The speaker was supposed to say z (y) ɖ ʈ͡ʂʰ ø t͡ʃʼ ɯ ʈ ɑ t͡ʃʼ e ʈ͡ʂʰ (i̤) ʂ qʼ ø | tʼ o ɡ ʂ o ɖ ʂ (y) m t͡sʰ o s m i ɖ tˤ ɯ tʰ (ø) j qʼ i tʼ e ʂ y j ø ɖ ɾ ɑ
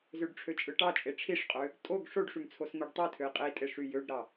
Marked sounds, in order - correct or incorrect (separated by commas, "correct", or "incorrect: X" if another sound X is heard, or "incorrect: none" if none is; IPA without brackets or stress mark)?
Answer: incorrect: ø, incorrect: i, correct, correct